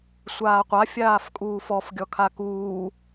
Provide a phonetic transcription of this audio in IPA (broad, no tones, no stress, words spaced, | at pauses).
sʷaːqʷa fʲaːfkʼuːfɔf ɡʲɔkʰakuː